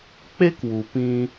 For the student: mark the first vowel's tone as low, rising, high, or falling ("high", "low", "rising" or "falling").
high